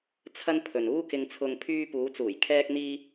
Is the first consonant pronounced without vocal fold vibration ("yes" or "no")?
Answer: yes